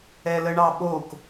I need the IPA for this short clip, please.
ɛ l ə ɳ ɑ ɓ o k

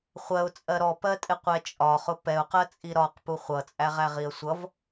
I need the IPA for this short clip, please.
χʷ ɜ ʊ̯ t͡sʼ ɜ ɾ ɔ p ɜ tʼ ɪ qʷ ɛ t͡ʃʼ ɒ χ ʊ p ɛ ʊ̯ q ɜ t͡sʼ i ɾ ɒ q p u χʷ ʌ t͡sʼ æ ʁ æ ʁ i ə̯ sʷ ʌ v

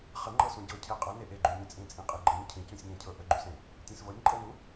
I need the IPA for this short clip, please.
χ ə ŋ͡ǃ ɤ s ũ ɟ ɤ cʰ e qʼ ə n e ʔ e ɡ͡ǃ y nʲ ẽ t͡sʼ ĩ t͡sʼ ĩ qʼ i ɡ͡ǃ ə ɲ cʰ ĩ c ũ sʲ ɲ ẽ cʰ ɤ ʔ ə ɡ͡ǃ y s ẽ | tʲ ẽ s v ɤ nʲ ǃʼ ɤ n u

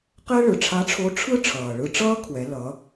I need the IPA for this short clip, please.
q ɛ˥ ɭ ɯ˩˧ ʈ͡ʂʰ a˧˥ ʈ͡ʂʰ o˧˥ ʈ͡ʂʰ ɯ˥ ʈ͡ʂʰ ʌː˩ ɭ ɯ˧ ʈ͡ʂ ʌː˥ kʰ w ɛ˩˧ l ʌ˩˧

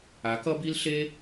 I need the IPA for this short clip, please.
a˨˦ k ʌ˦ b i˦ l ɬ e˦

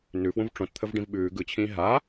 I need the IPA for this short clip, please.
n ʉ f w ũ v ʈ͡ʂ õ t t̪ʰ ə v ɖ ĩ v ɓ ʉː ɡ ɯ t͡ɕʰ ĩː ɦ a

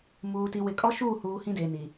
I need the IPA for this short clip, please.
m uː˨ t i˨ w ɪ˨˦ kʼ ɔ˦ ʃ uː˦˨ h uː˨ h ĩ˦ d eː˨ n i˨

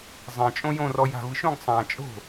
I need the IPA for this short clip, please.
zˤ ɛ̃ t͡ʃʼ õ j õ r ɔ j a̤ v ɯ ʃ õ ɡ sˤ ã t͡ʃʼ o̤

